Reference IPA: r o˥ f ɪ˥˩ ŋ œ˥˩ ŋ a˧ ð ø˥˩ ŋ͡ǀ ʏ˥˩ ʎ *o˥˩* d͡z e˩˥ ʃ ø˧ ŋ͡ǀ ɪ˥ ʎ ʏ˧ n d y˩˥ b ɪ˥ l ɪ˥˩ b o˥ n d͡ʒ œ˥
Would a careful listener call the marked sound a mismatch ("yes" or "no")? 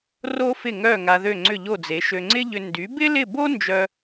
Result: no